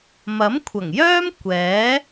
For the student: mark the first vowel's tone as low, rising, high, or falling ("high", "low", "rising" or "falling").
rising